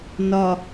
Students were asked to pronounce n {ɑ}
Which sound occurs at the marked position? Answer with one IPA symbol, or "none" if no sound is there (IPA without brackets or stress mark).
ɒ